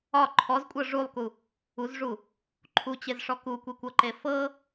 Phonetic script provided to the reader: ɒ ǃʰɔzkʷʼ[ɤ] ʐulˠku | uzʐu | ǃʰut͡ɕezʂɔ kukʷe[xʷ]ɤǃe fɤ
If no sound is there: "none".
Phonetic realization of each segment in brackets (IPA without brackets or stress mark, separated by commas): ɤ, kʷ